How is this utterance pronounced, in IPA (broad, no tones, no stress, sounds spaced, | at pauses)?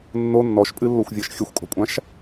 nː o nː ɔ ʃ pʼ ɨ lː o xʷ vʲ ɤ ʃ xʲ ə xʷ kʼ ɔ̤ kʷʼ ã ʃ